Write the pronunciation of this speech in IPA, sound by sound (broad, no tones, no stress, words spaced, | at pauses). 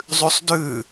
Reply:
zˤʉsˤdʉ